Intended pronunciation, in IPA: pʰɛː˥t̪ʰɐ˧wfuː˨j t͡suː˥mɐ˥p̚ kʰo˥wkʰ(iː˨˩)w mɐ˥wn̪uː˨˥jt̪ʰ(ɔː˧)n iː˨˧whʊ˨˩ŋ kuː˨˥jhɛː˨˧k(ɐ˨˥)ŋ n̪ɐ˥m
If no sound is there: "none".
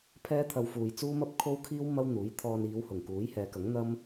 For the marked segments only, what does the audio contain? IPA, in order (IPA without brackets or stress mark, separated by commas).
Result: iː˥, ɔː˧, ɐ˨˥